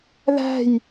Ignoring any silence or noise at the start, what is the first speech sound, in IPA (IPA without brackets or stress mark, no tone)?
ð